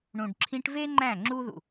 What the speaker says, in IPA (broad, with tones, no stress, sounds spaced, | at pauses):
ɳ ũ˨ ɖ ǁʰ ĩ˧ ʈ v e˦ ŋ͡ǃ æ̃˦˨ ŋ͡ǁ u˦ ð ṵ˨